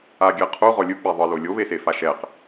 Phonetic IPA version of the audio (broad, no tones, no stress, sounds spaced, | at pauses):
a ɡʲ ɛ qʰ u ʁ ɔ lʲ ɯ k͡p ɛ ðˤ ɯ l o lʲ o β e s e f a ʃ ɛ q